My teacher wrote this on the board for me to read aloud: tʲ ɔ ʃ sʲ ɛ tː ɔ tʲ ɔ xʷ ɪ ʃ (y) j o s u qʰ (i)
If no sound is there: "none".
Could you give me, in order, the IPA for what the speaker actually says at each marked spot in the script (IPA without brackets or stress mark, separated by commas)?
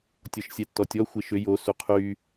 ʏ, y